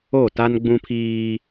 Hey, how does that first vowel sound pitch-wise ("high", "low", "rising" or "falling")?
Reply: falling